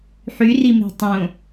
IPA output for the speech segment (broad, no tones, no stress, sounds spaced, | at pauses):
ħ y r i m e̤ tˤ õ